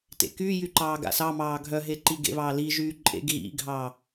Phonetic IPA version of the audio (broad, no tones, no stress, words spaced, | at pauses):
tḛkyjy ǃɑːɡa̰sɑmɑː ɡʱœɦe ǃiɡḛβɑː liʒyː ǃʼḛɡ ɣḭɡʱɑ